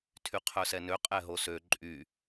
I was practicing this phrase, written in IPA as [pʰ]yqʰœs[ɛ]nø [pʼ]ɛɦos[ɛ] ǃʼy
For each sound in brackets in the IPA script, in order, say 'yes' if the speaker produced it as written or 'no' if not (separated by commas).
no, yes, no, no